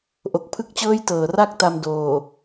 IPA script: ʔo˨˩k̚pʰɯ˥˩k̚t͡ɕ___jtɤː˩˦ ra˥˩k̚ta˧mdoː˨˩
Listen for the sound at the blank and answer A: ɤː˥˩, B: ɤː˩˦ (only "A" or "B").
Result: A